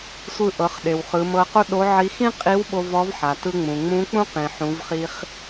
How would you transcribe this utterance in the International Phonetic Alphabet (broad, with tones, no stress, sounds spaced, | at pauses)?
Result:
sʷ ɯ˧ ʔ ɤ˩˧ χ ɗ e˩ w χ ɯ˩˧ m ɤ˧ q o˥ ɗ o˧˥ ʕ i˧˥ x ĩ˥ qʼ i˧˥ w ɓ o˧ v ɔ˧˥ v ħ a˩ t ɯ˧ ŋ͡m ũ˩ ŋ͡m ũ˧˥ k͡p ũ˥ q ĩ˩ ħ ũ˩˧ v χ i˧ χ